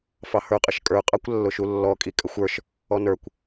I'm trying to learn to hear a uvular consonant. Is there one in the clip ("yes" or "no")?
yes